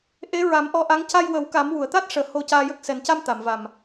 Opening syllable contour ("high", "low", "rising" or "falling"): rising